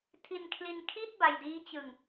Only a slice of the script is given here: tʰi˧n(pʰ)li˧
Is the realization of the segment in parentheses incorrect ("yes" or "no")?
yes